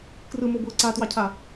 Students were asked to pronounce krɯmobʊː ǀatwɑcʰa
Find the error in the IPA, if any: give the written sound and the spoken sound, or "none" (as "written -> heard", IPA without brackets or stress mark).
none